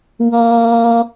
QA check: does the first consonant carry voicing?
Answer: yes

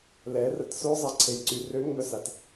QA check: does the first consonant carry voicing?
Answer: yes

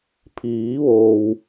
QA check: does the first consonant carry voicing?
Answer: no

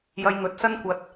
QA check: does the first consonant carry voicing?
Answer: yes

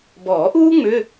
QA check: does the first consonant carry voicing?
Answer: yes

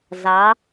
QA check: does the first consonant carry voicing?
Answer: yes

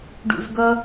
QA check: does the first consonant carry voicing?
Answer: yes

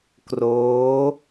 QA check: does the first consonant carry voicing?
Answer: no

